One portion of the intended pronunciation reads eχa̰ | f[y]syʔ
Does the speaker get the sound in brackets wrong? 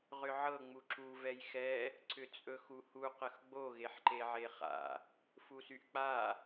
yes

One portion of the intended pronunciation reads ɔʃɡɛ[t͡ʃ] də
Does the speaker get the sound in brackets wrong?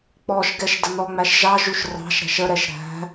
yes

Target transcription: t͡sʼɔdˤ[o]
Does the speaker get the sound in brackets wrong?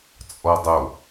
no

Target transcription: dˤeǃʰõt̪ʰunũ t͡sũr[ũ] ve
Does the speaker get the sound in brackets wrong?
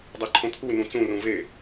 no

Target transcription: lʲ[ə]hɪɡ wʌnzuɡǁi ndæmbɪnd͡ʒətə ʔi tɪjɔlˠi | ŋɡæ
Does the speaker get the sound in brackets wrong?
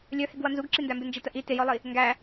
yes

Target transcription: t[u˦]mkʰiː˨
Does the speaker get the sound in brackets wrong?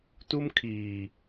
no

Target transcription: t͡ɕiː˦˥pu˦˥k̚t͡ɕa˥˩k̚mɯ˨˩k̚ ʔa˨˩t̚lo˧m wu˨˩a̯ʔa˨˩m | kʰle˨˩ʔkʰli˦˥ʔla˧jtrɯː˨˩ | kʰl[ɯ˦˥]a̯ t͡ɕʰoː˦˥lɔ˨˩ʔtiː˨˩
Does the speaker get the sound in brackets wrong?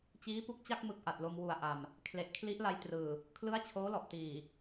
no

